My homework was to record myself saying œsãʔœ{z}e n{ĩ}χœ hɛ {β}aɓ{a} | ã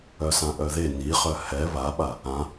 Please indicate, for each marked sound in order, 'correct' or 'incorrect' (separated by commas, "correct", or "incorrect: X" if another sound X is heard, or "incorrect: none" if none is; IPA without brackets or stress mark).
incorrect: ð, incorrect: i, correct, correct